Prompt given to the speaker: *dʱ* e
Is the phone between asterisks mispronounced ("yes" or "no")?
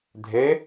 no